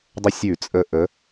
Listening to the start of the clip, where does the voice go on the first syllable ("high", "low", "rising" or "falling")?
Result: high